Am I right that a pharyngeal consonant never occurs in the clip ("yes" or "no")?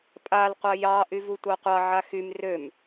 no